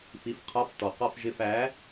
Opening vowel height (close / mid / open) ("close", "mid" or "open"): close